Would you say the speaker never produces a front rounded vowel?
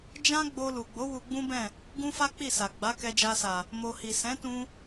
yes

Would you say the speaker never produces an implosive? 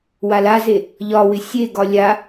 yes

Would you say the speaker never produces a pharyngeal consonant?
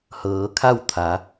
yes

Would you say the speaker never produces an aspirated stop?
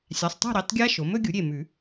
yes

